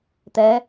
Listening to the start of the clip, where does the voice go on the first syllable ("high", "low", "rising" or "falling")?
rising